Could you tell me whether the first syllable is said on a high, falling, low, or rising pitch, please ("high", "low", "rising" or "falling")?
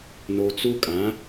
low